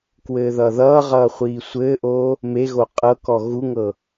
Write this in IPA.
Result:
k w ɘː ð ʌː ð ʌː ʁ ʌː χʷ iː sʷ ɘː ʔ oː | m e ɣ o qʼ ɤ k ɔ ɣ u ŋ ɤ

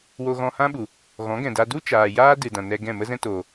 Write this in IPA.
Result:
w o˧ ɣ ɔ̃˧ h ã˦ ɓ u˨ | ɣ ɔ̃˨˦ ɡ ɛ̃˨ d a˧ d u˦ t͡ʃ aː˨ j aː˦ d ɨ˨ d ã˨ n ɛ˧ ɡ ɛ̃˦˨ m ə˦ z ɛ̃˦ t oː˨

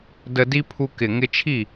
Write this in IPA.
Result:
d ə˧ d i˦ pʰ u˧ k ɪ˨ ŋ ɪ˧ t͡ʃʰ i˦˨

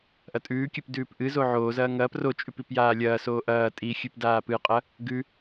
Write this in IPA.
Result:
ʔ ɐ tʼ ʉː kʲ ʉ p d ʉː p ʔ ɨ z o ʕ oː z ɐː ŋ ɐː p r o t͡ʃʼ ʉ p i p j aː lʲ ɐː s oː ʔ ɐː tʼ i xʲ ʉ p d aː p ɨ qʼ ɐ | ɡ ʉ

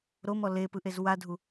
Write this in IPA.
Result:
ɾ o m ɔ l e p ɯ ʔ e z w a dʱ u

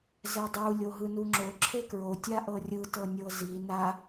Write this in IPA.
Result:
z ɛ dˤ u lʲ o ɦ ɯ n u ŋ͡ǁ o ǁʰ e k ɹ o tʲ a ʔ ɤ rʲ ɯ t ɤ nʲ ɤ z i n a

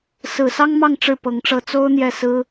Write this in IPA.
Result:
s ɹ̩˨˩ s ɑ˥ ŋ m ɑ˥˧ ŋ ʈ͡ʂ ɻ̩˥˩ p ɤ˧˥ ŋ ʈ͡ʂ ɤ˥˩ t͡s o˥ ʊ̯ n̪ j ɛ˥˩ s ɹ̩˥

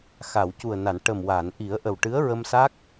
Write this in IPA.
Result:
x a˨˩˨ w c u˨˩ ə̯ n a˨˩˨ n ʈ ə˨˩ m w a˨˩˨ n ʔ i˨˩˦ ə̯ ʔ ə˨˩ w ʈ ɨ˧˥ ə̯ ɹ ə˧ m s a˦˥ k̚

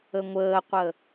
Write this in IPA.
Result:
ə ŋʷ əː qʷ ə

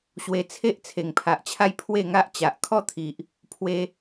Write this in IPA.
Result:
ɕ w e˧ t͡sʰ e˦ ʔ t͡sʰ e˨˩ ŋ pʰ a˨ ʔ t͡ɕʰ a˦ j pʰ w e˥˧ ŋ a˦ ʔ t͡ɕ a˨ ʔ kʰ ɔ˦ t̪ʰ i˨ ʔ | pʰ w e˧

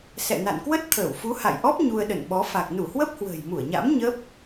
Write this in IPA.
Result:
s ɛ̰˧˨ n a̰˧˨ n k w ə˦˥ t̚ t̪ʰ əː˧˩ w f u˨˦ h a̰˧˨ j ʔ ɔ˦˥ p̚ ɲ u˧ ə̯ ɗ ə̰˧˨ n ɓ ɔ˨˦ f a˨˩ k̚ n u˧˩ h w ə˦˥ p̚ h w ə̤ː˨˩ j m u˧˩ ə̯ ɲ a̰˧˥ m ɲ ə˦˥ p̚

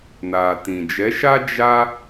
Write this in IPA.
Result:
n a˨ t ĩ˨ d͡ʒ ɛ˨˦ ʃ a˦ d͡ʒ a˦

